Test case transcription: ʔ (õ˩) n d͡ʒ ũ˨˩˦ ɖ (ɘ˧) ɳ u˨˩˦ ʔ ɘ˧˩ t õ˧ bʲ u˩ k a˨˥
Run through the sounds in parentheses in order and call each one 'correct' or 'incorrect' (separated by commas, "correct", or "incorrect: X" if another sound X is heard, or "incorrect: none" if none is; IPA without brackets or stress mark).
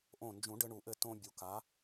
incorrect: õ˧˩, correct